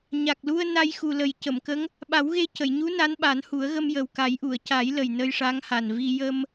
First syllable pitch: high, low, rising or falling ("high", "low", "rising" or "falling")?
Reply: low